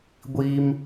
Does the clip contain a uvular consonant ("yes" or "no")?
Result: no